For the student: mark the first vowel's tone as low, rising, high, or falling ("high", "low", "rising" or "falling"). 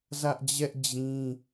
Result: high